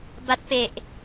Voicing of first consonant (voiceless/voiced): voiced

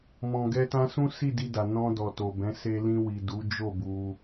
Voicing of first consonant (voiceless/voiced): voiced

